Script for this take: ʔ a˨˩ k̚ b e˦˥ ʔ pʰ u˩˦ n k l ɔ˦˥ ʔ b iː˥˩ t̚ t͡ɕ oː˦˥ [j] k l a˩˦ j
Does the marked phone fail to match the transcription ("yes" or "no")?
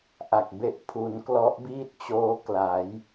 yes